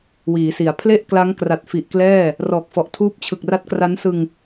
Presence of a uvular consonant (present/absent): absent